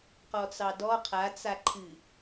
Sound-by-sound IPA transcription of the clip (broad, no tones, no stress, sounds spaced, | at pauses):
q ɔ t͡s ɑ d ɔ qʰ a t͡s a ǃʰ ɨ